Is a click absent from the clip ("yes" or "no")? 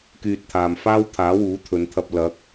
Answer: yes